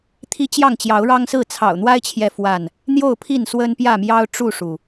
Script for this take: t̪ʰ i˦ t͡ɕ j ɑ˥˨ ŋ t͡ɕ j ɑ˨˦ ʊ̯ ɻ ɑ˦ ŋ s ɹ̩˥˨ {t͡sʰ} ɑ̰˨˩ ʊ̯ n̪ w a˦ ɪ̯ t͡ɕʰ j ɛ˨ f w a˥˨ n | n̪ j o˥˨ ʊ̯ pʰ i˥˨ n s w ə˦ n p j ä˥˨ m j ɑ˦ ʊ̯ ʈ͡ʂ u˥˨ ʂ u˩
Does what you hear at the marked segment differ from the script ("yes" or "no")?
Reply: no